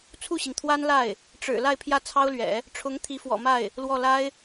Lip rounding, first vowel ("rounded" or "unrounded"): rounded